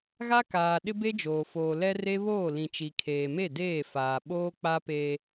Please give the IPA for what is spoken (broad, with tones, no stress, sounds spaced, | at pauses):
ɣ a˦ k aː˨ ɗ ɪ˦ b e˦ d͡ʒ oː˨ f oː˨ l ɛ˦ r e˦ β oː˦˨ l ĩ˨ t͡ʃ i˨ kʰ eː˨ m e˦˨ d eː˦˨ f aː˨ ɓ oː˦ k͡p a˦ p e˦